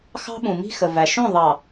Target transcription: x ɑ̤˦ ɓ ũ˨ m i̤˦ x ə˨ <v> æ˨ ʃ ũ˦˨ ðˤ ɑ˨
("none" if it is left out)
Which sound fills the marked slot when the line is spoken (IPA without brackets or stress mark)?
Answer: v